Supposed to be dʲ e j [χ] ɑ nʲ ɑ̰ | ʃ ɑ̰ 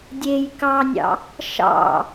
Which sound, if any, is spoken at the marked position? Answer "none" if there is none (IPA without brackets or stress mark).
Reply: k